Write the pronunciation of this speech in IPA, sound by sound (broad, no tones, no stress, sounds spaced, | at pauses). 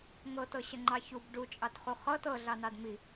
ŋ ɤ t ɤ ɕ ə ŋ͡ǃ ɑ ç u b ɖ u t͡ʃʼ ɑ t χ u χ ɤ t ɤ ɮ ɑ n ɑ d m i